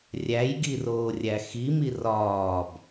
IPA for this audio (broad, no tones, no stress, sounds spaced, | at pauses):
rʲ æ j ɡ i r oː rʲ æ x i m i r ɒː b